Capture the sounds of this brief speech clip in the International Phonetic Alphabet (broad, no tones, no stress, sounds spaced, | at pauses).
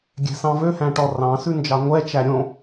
ɡʲ ɛ̤ s ɑ̃ v ø h æ̃ ʈ ɔ r ɑ̃ s ʉ n d͡ʒ ɑ ŋʷ ɛ t͡ʃ æ ɾʲ õ